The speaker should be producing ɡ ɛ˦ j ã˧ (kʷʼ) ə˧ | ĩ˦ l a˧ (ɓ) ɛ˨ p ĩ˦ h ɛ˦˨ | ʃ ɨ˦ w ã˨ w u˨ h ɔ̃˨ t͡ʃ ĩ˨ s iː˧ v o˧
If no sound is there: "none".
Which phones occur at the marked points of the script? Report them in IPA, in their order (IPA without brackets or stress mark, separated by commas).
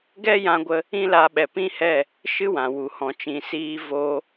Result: ɡʷ, ɓ